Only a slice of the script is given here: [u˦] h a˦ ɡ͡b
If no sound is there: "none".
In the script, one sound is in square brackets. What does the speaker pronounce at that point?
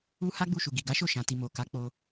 u˦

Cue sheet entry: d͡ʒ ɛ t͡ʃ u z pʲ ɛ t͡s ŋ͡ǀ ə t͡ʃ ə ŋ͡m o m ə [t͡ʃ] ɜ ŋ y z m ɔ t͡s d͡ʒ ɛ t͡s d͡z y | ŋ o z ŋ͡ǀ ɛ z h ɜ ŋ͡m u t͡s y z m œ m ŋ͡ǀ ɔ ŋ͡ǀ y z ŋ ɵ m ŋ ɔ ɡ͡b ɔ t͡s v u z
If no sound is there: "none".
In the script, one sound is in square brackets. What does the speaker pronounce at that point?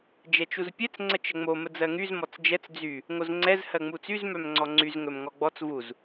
d͡z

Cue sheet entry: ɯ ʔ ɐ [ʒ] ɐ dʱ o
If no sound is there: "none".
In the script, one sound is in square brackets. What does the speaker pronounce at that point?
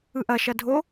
ʃ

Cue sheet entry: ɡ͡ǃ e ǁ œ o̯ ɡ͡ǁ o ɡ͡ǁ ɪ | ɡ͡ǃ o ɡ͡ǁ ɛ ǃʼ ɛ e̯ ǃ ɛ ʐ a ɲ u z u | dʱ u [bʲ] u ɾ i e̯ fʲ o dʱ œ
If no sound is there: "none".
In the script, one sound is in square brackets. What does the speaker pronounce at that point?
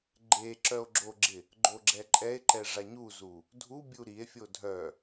bʲ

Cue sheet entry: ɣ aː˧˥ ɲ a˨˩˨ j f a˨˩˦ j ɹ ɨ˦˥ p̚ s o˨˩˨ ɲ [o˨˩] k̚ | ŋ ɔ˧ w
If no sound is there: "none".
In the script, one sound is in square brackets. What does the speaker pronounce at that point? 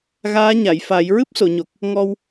o˨˩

